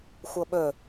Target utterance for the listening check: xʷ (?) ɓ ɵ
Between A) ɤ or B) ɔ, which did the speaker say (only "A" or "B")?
A